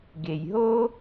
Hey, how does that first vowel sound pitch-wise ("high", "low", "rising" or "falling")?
low